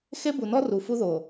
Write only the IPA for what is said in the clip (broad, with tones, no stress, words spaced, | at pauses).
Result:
xe˦bu˨nɔ˦ ru˨fu˦ðo˨